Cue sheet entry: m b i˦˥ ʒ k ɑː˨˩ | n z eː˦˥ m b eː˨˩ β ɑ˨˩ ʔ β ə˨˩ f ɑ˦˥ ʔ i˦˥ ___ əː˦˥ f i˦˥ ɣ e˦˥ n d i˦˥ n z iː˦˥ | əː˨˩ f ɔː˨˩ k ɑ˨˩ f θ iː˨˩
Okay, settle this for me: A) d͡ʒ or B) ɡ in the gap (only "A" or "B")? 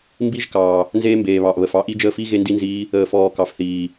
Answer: A